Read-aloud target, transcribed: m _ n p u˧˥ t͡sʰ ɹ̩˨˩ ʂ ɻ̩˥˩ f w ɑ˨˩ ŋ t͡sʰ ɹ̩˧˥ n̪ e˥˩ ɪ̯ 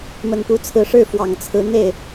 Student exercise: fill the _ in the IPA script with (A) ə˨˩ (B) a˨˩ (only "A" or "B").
A